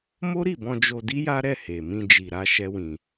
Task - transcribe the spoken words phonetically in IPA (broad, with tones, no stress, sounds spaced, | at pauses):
m o˦ ɾ i˦˨ b ɔ̃˧ d͡ʒ o˧ d i˦ j a˦ ɾ ɛ˦˨ h e˨ m ĩ˧ d͡ʒ i˨ ɾ a˧ ʃ ɛ˦ w ĩ˧